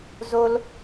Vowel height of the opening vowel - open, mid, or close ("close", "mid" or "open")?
mid